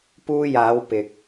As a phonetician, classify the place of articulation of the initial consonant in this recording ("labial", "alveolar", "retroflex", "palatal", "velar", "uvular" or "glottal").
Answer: labial